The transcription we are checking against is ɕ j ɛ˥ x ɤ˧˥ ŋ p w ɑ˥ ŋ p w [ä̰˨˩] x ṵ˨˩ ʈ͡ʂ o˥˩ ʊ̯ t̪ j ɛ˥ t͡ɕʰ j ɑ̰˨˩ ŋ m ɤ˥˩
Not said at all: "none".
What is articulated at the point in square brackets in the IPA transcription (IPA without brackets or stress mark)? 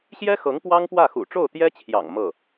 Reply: ä˥˩